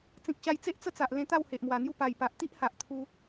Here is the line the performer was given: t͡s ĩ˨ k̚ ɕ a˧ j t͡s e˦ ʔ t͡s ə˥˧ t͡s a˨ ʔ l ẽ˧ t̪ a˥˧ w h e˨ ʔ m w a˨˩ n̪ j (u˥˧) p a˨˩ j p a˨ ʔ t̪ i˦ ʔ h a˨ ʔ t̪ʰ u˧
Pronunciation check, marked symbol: correct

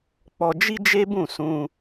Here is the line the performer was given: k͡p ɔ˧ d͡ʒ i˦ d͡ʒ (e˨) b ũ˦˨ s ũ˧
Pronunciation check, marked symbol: incorrect: e˦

